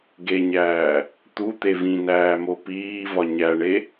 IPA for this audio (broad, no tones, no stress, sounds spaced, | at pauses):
ɡ e ɲ æː | t̪ u t̪ e v ĩ n æː m o p iː v ɒ ɲ æ ɳ e